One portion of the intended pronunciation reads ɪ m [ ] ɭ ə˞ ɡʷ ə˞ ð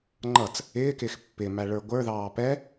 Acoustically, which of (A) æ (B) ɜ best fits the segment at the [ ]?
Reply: A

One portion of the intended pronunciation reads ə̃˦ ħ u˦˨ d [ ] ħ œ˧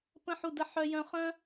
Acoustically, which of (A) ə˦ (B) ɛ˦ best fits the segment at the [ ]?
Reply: A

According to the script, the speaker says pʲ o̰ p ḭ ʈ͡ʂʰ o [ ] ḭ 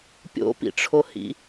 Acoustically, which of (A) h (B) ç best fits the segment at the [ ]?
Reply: A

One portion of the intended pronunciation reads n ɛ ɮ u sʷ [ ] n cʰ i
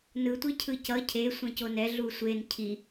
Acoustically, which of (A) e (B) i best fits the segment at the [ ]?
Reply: A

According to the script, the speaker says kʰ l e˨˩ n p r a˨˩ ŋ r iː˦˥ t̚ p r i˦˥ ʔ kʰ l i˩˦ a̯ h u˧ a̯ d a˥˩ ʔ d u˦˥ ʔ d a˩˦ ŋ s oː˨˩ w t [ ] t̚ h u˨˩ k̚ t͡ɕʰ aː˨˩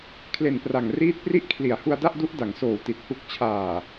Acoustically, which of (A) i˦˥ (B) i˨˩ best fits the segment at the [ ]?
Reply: B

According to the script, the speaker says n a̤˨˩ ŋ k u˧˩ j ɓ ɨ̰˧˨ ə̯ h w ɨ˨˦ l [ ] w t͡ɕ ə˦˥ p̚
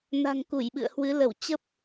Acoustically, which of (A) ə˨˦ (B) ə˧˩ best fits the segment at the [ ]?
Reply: B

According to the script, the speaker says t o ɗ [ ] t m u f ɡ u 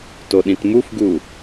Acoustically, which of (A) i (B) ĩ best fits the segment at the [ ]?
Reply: B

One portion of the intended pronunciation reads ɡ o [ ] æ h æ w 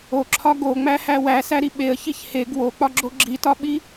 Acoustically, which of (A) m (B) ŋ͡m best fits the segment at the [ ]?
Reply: B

